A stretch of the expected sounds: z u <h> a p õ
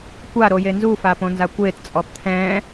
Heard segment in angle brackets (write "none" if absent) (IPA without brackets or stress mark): f